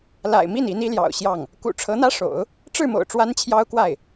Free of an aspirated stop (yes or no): no